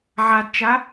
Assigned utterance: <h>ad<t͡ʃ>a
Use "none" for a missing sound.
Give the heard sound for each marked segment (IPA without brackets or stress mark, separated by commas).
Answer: ʕ, t͡ʃ